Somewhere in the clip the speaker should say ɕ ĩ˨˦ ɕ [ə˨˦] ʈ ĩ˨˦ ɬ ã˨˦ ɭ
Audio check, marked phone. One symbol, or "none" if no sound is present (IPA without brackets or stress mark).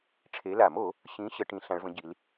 ə˨˦